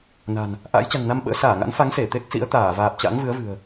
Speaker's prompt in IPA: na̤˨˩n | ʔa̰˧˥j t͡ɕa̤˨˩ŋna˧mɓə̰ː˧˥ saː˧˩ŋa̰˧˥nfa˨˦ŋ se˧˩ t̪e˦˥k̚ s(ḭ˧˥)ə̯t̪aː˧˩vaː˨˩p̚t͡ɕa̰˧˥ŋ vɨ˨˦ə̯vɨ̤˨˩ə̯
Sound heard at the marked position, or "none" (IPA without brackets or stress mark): ḭ˧˥